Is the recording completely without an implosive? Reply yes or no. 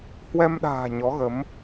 no